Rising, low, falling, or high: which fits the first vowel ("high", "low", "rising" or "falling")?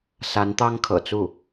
rising